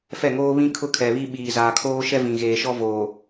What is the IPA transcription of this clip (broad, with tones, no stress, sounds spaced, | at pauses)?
f ɛ˦˨ ŋ oː˦ β ĩ˦ kʰ ʊ˦ kʰ ɛ˨ β i˦ ɓ iː˨ z aː˨ kʰ oː˦ ʃ ɛ˦ v ĩ˨ ɣ eː˨ ʃ ɔ˦ v oː˨